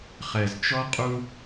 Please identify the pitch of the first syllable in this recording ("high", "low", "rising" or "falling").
low